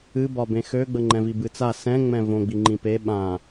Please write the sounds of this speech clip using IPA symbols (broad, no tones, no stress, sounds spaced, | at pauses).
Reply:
ɨ b ɒ b ẽ x ø ɡ͡b ə ŋ͡ǃ ɛ̃ v i b ɨ t͡s a s ɛ̃ ŋ͡m ɛ̃ v õ ɡ͡b i ŋ͡ǃ ĩ p e ɓ ã